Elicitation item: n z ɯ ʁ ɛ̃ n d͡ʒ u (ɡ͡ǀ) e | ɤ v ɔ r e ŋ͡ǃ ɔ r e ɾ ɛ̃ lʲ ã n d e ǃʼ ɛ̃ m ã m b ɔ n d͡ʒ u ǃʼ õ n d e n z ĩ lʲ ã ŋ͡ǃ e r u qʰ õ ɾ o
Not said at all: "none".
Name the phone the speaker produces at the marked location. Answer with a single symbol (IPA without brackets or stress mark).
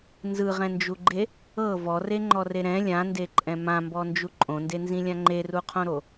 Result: ɡ͡ǃ